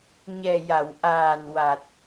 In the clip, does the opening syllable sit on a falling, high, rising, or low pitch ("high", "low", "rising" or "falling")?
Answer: low